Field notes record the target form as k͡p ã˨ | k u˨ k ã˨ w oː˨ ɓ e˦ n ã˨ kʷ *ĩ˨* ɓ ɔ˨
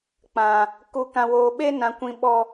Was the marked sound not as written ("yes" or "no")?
no